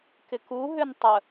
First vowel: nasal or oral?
oral